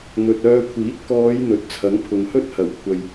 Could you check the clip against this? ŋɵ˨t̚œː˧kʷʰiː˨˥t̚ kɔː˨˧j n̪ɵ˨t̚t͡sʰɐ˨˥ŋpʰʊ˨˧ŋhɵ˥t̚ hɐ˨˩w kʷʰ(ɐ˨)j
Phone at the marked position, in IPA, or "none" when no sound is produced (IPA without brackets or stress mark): ɐ˨